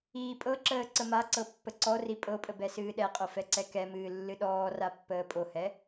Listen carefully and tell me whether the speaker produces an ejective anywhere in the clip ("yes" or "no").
yes